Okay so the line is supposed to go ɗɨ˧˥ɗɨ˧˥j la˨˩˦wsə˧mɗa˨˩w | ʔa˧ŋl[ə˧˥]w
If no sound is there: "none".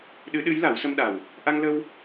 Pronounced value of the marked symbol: ə˧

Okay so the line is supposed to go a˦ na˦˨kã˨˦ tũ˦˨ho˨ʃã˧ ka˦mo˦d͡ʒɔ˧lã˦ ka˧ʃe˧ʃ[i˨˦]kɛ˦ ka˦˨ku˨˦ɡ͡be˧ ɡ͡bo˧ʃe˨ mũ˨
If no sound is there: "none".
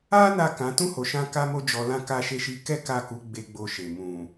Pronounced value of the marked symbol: i˧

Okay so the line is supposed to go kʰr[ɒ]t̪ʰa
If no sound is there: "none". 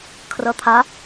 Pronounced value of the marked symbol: ʌ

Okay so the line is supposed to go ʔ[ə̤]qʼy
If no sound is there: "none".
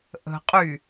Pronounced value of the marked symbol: ə̤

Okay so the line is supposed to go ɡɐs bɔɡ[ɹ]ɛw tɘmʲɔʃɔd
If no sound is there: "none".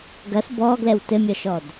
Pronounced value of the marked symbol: l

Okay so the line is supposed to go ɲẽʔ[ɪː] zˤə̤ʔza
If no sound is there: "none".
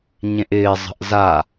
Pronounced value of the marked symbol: ɪː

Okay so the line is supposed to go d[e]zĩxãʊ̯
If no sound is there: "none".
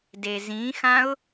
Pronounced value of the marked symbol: e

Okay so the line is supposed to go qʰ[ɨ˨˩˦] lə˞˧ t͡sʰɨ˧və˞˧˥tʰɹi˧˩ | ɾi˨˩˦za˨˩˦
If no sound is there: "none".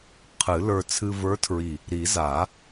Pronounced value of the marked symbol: ɨ˨˩˦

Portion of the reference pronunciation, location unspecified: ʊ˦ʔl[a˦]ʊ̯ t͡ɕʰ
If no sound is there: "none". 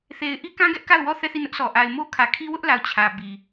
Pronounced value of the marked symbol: a˨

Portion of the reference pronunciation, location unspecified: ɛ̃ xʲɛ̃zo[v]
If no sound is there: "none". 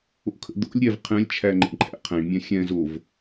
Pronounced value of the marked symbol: v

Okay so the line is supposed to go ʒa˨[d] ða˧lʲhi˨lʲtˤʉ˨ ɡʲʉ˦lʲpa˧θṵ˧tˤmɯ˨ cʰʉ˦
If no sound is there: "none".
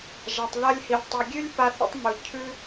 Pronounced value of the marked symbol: tˤ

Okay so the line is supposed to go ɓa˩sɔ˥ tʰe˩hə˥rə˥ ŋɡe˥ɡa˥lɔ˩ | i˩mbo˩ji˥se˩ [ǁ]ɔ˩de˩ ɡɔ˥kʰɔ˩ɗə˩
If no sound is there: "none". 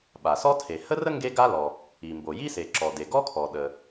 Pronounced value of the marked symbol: ǁ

